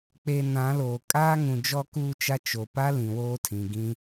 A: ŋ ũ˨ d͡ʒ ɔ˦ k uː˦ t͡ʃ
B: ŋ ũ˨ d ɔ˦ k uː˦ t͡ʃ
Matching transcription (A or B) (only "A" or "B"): A